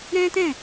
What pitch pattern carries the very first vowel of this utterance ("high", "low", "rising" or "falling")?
high